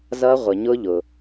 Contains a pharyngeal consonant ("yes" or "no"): no